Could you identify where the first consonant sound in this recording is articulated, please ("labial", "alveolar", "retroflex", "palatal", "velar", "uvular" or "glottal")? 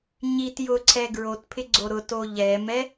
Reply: palatal